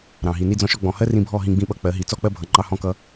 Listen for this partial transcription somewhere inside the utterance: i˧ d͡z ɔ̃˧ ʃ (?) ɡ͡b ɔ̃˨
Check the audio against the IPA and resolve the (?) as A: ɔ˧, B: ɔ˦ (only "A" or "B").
A